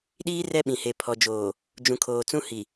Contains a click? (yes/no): no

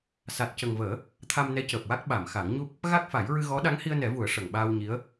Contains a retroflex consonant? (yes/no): yes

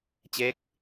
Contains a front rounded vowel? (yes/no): no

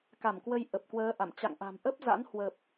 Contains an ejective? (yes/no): no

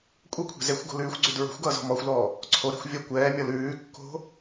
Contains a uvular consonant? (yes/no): no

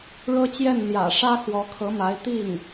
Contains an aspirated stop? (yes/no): yes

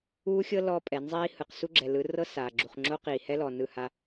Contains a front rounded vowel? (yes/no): no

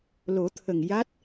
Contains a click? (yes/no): no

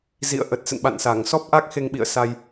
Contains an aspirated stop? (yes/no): no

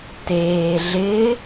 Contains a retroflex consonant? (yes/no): no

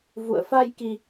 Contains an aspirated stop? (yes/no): no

